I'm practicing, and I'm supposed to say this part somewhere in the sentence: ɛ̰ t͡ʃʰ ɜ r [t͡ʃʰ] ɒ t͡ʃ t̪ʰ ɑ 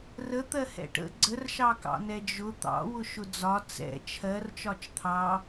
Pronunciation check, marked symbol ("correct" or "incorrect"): incorrect